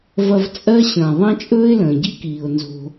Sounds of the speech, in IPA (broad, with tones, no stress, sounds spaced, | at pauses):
v ɐ˦ v t͡sʼ ɜ˥ ɕ ə̃ː˨ ðˤ ɐ̃˦ t͡ʃʼ ɵː˦ ɪ̯ l ə̃ː˩ ɟ i˦ k iː˩ ʊ̯ n z o̤˨